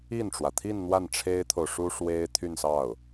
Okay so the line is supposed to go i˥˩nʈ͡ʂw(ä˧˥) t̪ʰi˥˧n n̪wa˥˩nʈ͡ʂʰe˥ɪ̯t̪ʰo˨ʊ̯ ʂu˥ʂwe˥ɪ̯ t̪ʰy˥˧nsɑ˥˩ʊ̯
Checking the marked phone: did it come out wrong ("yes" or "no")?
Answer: yes